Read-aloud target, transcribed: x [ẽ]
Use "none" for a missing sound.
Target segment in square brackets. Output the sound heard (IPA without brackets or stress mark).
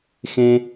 ẽ